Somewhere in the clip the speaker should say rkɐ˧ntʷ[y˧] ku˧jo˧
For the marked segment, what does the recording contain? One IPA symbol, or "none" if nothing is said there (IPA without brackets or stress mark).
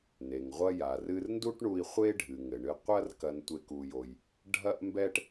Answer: e˧